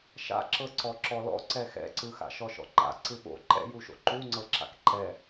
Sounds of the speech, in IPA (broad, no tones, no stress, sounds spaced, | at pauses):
ʃ a̰ ǁ ɤ ǀ ɔ ǁ ɔ l ɔ̰ ǀ ɛ x ɛ̰ ǀ ɯ x a̰ ʃ ɔ ʃ ɔ̰ ǃ a̰ ǀ ɯ ɓ o̰ ǃ ɛ̰ j u ʃ o̰ ǃ u ŋ͡ǀ ɤ ǁ a̰ k ǃ ɛ